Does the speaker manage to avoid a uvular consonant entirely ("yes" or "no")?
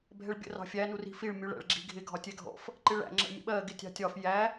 yes